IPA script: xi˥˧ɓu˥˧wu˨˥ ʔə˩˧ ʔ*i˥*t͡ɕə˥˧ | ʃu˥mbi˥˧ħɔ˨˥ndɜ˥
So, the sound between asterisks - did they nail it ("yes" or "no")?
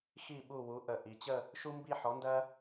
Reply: no